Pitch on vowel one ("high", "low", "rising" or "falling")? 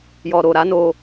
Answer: low